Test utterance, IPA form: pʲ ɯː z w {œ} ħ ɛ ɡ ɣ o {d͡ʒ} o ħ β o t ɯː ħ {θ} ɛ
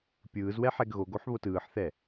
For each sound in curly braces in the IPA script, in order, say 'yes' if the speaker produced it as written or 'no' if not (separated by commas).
no, no, yes